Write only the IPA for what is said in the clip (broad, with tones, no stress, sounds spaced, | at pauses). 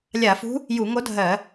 lʲ a˧˩˧ f ṳ˧˥ | j u˧˩˧ ŋ o˧˥ dʱ ɜ˧˩˧